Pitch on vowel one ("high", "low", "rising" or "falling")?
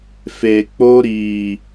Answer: low